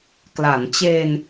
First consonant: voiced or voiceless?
voiceless